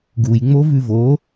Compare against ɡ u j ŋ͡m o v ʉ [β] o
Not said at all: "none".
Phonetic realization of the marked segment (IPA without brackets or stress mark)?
v